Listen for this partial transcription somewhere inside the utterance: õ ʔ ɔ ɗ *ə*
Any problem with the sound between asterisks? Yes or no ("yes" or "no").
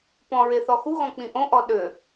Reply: yes